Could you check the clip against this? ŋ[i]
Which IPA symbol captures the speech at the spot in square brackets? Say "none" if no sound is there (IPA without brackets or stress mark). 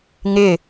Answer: ɪ